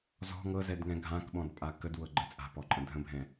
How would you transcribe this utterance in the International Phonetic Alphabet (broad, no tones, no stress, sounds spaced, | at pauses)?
z ɔ̤ ŋ ɤ z ɛ d ŋ ɛ̃ ɡʱ ã k ɓ ɔ̃ d pʼ a k ə d w ɤ ɡ͡ǃ ə t͡sʼ a̤ p ɔ ǃʼ ə̃ dʱ ə̃ bʱ ɛ̃